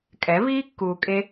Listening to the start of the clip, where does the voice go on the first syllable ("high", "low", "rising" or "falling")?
rising